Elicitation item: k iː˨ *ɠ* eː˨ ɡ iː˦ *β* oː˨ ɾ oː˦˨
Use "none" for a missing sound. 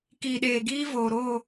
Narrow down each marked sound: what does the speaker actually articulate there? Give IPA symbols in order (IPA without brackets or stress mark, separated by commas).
ɗ, v